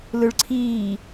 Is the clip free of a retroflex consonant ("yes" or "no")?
no